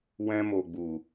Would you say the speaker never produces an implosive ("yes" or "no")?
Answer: yes